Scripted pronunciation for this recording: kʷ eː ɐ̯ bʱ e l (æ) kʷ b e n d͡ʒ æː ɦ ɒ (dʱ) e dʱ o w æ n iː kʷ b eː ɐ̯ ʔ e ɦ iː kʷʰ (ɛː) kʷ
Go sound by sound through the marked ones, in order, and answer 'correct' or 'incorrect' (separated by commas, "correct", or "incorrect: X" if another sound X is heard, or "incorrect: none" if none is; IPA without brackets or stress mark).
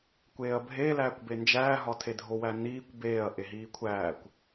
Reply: incorrect: æː, incorrect: tʰ, incorrect: æː